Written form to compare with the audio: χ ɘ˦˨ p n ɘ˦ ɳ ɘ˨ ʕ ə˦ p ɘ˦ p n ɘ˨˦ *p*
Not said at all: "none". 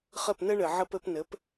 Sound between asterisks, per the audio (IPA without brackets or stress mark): p